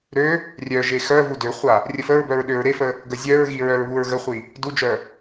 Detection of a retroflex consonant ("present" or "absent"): absent